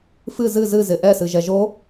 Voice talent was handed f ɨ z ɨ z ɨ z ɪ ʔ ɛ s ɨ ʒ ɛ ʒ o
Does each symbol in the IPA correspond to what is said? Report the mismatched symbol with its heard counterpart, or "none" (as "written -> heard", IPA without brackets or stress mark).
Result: none